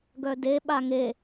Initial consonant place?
velar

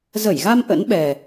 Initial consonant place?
alveolar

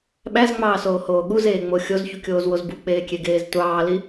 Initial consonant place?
labial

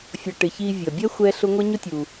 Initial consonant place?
labial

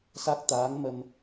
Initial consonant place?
alveolar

